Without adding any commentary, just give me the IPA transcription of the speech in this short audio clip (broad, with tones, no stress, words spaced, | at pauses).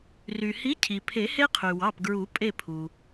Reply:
ry˩hi˨˥ cʰi˩pʰe˨˩˦he˦ qʰy˩wɑ˩˧˩pɡɹu˨˩˦ pʼe˦˨pʰu˩